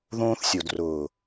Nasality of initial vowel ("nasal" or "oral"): nasal